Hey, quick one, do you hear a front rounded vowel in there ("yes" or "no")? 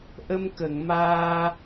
no